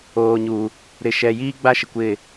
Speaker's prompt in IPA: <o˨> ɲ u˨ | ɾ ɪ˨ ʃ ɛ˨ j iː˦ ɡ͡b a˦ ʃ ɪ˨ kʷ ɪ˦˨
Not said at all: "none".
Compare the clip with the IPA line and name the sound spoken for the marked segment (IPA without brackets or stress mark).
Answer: oː˨